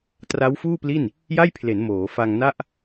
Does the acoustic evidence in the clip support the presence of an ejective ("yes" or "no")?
no